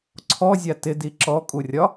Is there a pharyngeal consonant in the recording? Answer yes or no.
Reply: no